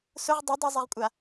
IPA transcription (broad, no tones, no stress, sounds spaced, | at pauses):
s ʊ ʁ dˤ i dˤ u zˤ i ʁ kʷʼ a